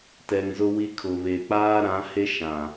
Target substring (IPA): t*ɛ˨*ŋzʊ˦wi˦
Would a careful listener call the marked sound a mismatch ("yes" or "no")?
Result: no